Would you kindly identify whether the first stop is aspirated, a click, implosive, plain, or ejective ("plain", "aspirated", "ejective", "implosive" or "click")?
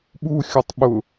implosive